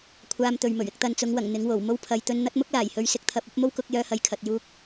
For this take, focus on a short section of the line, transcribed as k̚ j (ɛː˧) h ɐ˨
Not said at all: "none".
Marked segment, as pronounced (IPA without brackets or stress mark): œː˧